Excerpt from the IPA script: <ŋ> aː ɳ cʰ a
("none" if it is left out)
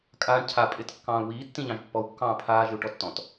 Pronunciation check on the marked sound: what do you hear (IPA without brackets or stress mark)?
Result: kʼ